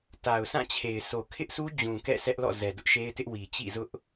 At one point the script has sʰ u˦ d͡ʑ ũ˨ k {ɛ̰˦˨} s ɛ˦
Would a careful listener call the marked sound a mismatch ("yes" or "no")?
no